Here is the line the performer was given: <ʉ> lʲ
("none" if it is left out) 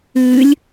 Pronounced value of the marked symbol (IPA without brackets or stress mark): ʉ